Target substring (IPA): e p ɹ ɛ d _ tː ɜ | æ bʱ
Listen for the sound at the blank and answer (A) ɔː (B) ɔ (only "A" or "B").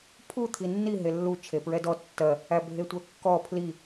B